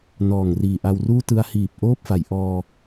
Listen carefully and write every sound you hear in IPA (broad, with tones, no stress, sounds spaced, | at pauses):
n ɔː˨˩ ŋ r iː˨˩ ʔ a˧ w r uː˥˩ t ɯ˧ a̯ h iː˨˩ p̚ ʔ oː˥˩ p̚ f a˩˦ j ʔ ɔː˧